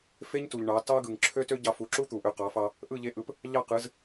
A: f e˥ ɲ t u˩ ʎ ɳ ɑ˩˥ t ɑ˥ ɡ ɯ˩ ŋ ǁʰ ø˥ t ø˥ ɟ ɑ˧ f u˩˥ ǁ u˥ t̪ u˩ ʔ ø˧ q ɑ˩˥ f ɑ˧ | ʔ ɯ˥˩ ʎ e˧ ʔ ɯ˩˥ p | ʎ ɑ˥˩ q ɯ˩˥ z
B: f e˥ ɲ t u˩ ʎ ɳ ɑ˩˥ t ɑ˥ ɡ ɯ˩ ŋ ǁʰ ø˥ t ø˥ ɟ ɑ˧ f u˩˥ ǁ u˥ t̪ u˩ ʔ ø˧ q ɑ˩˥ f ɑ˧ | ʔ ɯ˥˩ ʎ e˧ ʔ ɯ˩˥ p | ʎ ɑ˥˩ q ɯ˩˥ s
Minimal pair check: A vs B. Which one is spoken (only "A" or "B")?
A